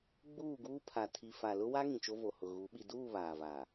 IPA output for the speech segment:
ɡ͡b uː˦˨ ɡ uː˦ pʰ a˨ tʰ i˨ f a˨ l ʊ˦ w a˦ ŋ ĩ˨ t͡ʃ o˦ v o˨ h ʊ˨ ɣ u˨˦ ɓ i˨ d uː˦˨ β aː˨ v a˨

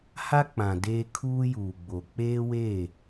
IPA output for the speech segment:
h a˦ k͡p ã˨ d eː˦ kʰ uː˦ j uː˨ ɡ͡b o˨ k͡p eː˦ w eː˦˨

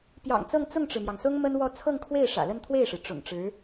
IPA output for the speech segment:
p j ɑ̰˨˩ ŋ t͡s ɤ˥˧ ŋ t͡s ʊ˥˩ ŋ ʈ͡ʂ ɻ̩˩ m j ɑ˩ ŋ s ʊ˥ ŋ m ə˥ n w ɔ˥˧ t͡sʰ ɤ˥˧ ŋ kʰ w e˥˩ ɪ̯ ʂ ä̰˨˩ l ə˥˧ n t̪ʰ w e˥˩ ɪ̯ ʂ ɻ̩˩ ʈ͡ʂ ʊ̰˨˩ ŋ ʈ͡ʂ ɻ̩˧˥

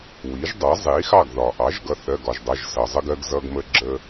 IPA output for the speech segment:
w i˩˥ ʒ dˤ ʌ˩˥ zˤ i˩˥ x ɑ˥˨ ɡ ð ɒ˩ ʔ ɑ˩˥ ʒ ɡ ʌ˩˧˩ θ ɜ˩˧˩ ɡ ɒ˩ ʒ dˤ ʌ˩˧˩ ʒ s ʌ˩ zˤ ə˦ ɡ ɜ˦ ɡ z ʌ˦ ɡ m ə˦ ɡ͡ǁ ə˦

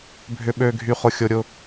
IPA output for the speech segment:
bʱ ʏ˨ ɓ ø˨ ɡʱ y˨ χ ʊ˨ xʲ ʊ˨ ɾʲ ʊ˨

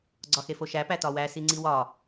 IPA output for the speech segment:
ɡ͡ǀ ɒ x e f o ʃ æ p æ t ɒ w æ s i ŋ͡ǀ i w ɒ

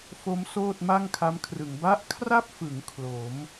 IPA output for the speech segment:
f o˦˥ m s oː˥˩ t̚ m a˥˩ ŋ kʰ a˦˥ m kʰ r ɯ˩˦ ŋ b a˦˥ ʔ kʰ r a˥˩ p̚ f ɯ˩˦ ŋ kʰ l o˩˦ m

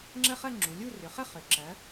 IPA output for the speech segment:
ŋ͡ǁ ə˥˧ χ ɜ˥˧ ŋ͡ǁ u˩˧ lʲ u˥˧ r ʏ˩˧ χ ə˥˧ χ ʏ˩˧ ǁ ɜ˩˧

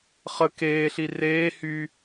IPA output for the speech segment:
χ ə k eː ɬ i r eː h y

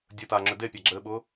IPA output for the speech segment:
dʲ ə t aː ŋ͡ǁ ʏ d e pʲ a ɡ͡ǁ ɘː ɓ ʊː

